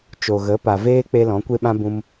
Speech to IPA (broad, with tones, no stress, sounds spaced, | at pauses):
t͡ʃ o˨ ɣ ə˨˦ p a˨ v eː˦ k͡p e˧ l ɔ̃˨˦ kʷ e˦ ɓ ã˦ b ũ˧ m